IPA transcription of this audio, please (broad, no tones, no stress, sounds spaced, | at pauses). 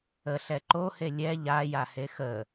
ə ɬ ɛ ǃ o h e lʲ ɛ ʎ a j a h e x ə